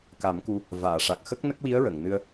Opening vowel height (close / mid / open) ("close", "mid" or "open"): open